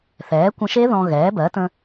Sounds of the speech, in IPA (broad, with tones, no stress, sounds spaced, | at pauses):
θ ɛː˩˥ kʷ ə̃˧ ʃ e˦˥ ð ɔ̃˧ ɣ ɛː˩˥ b ɜ˩˥ t ə̃˧